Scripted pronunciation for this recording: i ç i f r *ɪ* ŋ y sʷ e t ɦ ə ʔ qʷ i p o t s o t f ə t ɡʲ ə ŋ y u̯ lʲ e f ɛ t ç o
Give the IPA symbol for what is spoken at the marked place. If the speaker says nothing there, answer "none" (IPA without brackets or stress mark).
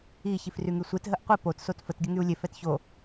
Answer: y